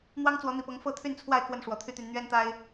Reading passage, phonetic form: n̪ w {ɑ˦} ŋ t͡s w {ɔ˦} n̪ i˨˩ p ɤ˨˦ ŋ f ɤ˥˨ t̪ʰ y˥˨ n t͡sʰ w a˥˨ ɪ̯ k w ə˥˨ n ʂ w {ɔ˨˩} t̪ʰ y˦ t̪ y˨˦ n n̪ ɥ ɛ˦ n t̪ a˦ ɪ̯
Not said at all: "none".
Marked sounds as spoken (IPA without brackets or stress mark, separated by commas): ɑ˦, ɔ˨˦, ɔ˨˩